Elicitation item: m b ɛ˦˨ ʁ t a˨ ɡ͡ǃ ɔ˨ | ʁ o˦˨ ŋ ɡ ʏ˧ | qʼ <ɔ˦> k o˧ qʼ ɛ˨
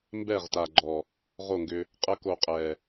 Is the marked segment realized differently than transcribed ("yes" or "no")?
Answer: yes